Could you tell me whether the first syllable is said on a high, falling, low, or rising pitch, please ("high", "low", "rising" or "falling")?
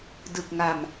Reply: low